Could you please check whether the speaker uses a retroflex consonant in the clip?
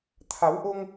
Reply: no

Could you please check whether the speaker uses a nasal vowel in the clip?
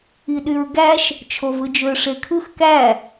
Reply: no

